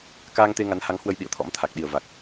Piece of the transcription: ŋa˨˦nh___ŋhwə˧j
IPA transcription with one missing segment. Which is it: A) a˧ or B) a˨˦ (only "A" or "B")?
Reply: B